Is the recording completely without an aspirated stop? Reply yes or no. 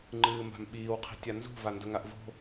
no